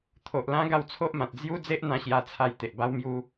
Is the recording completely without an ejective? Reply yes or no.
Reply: yes